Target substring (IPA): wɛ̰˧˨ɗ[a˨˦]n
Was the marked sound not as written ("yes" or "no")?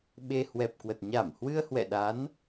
no